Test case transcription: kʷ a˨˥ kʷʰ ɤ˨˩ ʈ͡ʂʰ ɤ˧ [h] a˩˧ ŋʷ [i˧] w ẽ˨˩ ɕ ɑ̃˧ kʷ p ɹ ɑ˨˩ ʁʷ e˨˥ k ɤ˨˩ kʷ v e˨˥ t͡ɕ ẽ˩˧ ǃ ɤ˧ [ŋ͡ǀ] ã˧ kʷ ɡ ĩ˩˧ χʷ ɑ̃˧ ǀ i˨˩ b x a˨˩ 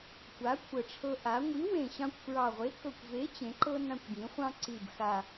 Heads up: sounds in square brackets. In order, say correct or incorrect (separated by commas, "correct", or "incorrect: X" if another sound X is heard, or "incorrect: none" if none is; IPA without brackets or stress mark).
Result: incorrect: ʔ, incorrect: i˨˥, incorrect: n